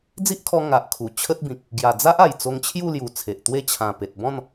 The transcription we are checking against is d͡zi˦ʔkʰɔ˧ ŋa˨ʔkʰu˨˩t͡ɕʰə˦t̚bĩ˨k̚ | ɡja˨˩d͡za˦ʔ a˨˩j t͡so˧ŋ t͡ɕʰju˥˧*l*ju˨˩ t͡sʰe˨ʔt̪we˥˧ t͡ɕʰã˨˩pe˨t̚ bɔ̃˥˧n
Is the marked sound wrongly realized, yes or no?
no